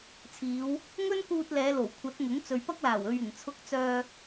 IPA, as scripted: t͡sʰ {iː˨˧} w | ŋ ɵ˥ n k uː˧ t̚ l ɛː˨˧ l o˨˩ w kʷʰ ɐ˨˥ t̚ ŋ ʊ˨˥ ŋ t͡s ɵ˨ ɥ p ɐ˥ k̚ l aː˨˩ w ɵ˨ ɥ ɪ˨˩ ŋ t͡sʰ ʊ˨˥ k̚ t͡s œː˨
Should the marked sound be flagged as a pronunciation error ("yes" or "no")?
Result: no